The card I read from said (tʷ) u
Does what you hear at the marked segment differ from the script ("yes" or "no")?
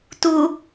yes